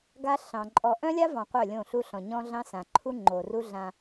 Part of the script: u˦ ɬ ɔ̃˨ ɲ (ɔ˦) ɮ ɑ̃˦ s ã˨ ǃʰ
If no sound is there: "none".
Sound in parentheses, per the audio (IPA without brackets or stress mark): ɔ̃˦